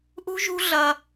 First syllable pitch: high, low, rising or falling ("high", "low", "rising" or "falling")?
high